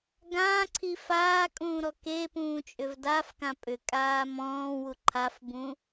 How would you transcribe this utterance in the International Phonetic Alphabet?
ɡ ãː ǀʰ i f aː kʼ ũː ɾ ɔ k e p ũː t͡ʃʼ ʏ v d a f k ã pʼ ʏ kʼ aː m ɔ̃ː w u ǃʰ a f b ũ

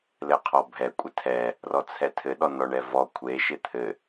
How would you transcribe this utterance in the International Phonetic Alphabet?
l ɘ qʰ ɔ bʱ ɛ kʷʼ ɘ tʰ ɛ | r ɔ t͡sʰ ɛ tʰ ɘ ɗ ɔ n ɔ ɳ ɛ v ɔ kʷʰ e ʃ ɪ t̪ʰ ɘ

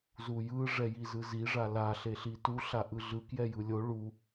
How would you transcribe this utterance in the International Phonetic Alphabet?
z u j ɯ ʐ ɛ j i z ɯ z i ʐ a l a ɬ e ɬ i t u ɬ a ʔ ɯ ɮ ɯ k j ɛ j ɯ lʲ o ɭ u

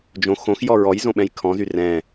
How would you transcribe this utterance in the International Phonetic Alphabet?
d͡ʒ õ x õ x j ɔ ɹ ɔ j z õ ɓ ɛ̃ j kʰ ɔ̃ z y r ɛ̃

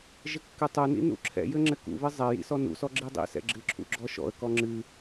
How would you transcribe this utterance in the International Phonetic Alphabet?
ʒ ɘ kː ɨ tˤ u n ḭ n ṵ ǁʰ ɛ̰ j ɘ ŋ͡ǁ ɘ k ṵ β ɨ zˤ ɛ j ḭ s ɔ n ṵ s ɔ ɡ͡ǁ i dˤ ḭ s ɛ̰ ɡ͡ǁ ɨ ǁʰ ṵ ɡ͡ǁ ɔ ʃ ɔ̰ ə̯ k ɔ ŋ͡ǁ ɨ

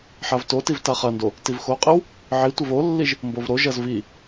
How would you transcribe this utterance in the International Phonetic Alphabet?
ħ a v t o t i v t a χ ɐ n d o | t i v x o qʼ i w | ʕ i tʷ ɘ v o lː i ʒ | m b o v ɾ o ʒ ɐ z v i

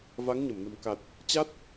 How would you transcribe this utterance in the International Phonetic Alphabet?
v a˨˦ ŋ ɲ ə˧˩ m n ə̤˨˩ m k a˨˩ t̚ | t͡ɕ a˦˥ t̚

